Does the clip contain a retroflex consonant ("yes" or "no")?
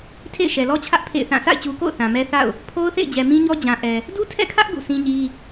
no